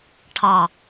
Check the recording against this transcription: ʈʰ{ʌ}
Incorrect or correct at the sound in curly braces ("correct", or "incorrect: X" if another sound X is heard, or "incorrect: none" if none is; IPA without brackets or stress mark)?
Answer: incorrect: ɑ